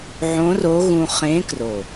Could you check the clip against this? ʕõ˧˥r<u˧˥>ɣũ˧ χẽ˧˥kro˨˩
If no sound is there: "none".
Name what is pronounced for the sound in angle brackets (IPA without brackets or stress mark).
o˧˥